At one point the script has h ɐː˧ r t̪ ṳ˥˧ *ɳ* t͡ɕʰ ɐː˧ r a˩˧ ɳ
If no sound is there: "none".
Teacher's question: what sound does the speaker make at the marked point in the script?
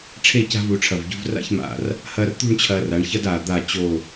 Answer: ɳ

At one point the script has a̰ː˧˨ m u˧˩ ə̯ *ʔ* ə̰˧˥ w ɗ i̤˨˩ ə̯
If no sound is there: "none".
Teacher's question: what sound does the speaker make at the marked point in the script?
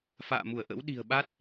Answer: ʔ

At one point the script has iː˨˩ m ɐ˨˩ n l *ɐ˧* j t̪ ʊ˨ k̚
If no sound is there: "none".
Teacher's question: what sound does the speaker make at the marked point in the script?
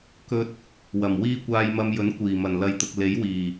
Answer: ɐ˧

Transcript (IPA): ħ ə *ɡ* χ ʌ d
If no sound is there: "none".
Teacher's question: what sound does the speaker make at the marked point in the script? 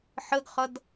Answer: ɡ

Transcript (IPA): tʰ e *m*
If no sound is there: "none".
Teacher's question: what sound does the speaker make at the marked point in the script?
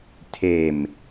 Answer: m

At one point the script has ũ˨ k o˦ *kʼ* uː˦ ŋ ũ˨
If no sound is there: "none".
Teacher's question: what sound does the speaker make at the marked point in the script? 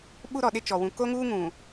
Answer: ŋ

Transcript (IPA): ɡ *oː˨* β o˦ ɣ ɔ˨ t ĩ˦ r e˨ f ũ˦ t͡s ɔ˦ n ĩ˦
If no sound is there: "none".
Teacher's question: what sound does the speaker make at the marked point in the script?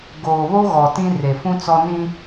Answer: oː˨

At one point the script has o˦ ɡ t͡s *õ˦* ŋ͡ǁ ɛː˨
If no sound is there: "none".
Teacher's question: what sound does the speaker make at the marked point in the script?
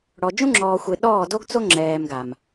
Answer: o˦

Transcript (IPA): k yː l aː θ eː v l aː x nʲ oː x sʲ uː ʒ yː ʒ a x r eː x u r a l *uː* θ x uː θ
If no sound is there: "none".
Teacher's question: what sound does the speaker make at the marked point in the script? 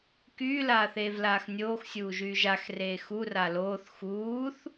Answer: oː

